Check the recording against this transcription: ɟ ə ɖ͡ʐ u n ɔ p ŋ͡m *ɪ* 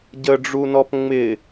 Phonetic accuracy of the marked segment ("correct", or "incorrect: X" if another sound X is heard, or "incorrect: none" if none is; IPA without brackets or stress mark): correct